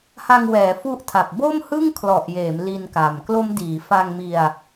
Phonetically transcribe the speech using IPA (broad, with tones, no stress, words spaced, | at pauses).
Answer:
ha˧ŋwɛː˩˦ fu˦˥ʔtʰa˨˩p̚ bo˥˩mhɯ˥˩ŋ kʰlɔ˨˩ʔjeː˩˦m li˧nka˨˩m klo˦˥mdiː˩˦ fa˧ŋmi˧a̯